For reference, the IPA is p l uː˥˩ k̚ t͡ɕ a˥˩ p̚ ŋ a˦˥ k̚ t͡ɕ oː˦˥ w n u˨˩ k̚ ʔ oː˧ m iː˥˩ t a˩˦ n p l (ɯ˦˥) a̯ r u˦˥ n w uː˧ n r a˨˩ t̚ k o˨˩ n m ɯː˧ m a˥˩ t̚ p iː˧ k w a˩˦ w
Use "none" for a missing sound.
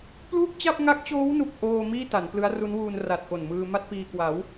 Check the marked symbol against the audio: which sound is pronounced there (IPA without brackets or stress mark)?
ɯ˦˥